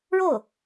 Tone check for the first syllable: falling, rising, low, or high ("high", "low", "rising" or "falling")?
falling